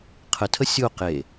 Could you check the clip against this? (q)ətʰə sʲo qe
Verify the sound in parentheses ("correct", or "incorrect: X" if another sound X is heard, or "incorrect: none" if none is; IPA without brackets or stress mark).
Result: incorrect: qʰ